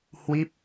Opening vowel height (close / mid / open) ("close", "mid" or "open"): close